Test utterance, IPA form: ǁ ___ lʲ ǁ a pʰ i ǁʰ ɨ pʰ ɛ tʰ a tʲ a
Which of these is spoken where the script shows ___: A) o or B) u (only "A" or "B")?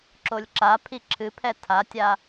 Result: A